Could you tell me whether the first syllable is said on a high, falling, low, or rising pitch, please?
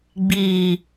low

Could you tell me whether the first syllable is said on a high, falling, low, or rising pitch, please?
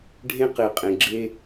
high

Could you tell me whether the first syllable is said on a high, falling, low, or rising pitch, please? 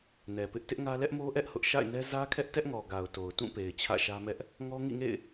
low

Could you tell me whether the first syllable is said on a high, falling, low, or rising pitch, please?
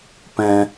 high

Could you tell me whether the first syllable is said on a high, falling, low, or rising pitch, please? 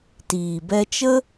low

